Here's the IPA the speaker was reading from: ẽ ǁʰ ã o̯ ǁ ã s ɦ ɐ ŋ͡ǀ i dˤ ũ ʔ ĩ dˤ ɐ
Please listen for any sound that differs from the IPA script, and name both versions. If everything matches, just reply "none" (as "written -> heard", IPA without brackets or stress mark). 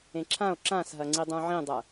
ʔ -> ʕ